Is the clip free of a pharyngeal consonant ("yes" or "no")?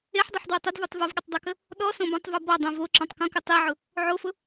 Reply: no